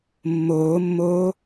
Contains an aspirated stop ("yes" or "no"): no